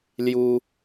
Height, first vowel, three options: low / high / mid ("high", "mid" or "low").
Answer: high